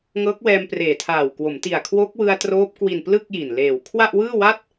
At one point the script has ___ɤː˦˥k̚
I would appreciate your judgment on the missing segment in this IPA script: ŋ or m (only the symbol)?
ŋ